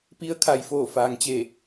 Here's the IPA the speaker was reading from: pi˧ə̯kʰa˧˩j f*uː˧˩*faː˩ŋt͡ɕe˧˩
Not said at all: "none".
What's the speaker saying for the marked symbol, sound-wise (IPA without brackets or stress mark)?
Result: oː˧˩